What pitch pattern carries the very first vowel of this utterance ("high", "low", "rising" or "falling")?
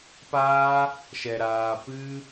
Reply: high